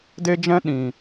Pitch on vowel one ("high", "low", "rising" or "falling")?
high